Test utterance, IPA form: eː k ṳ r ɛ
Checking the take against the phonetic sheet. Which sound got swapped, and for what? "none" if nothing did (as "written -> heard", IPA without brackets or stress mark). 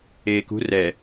none